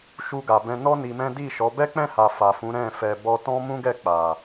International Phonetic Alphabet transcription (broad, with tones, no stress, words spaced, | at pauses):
ʃu˧ɡa˨bɛ̃˧ nɔ˦ ni˧mɛ̃˦ di˦˨ʃɔ˨˦ bɛ˦k͡pɛ̃˦˨ha˨ fa˨fũ˨˦ ɾɛ̃˦˨fɛ˧ bɔ˧tɔ̃˦mũ˦ ɡɛ˦˨k͡pa˨